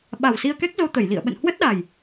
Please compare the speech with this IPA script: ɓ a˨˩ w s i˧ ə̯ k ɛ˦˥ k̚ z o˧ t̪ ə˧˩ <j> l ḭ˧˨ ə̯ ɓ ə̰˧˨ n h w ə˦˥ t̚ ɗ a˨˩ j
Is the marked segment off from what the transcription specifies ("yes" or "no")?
no